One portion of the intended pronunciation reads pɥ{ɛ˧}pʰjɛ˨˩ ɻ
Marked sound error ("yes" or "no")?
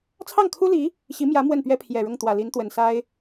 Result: yes